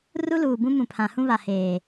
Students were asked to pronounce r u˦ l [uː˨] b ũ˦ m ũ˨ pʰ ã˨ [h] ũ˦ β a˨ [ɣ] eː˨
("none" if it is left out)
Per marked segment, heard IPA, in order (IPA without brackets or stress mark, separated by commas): uː˨, h, h